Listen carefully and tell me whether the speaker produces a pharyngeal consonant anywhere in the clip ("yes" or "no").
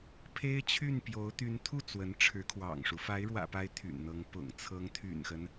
no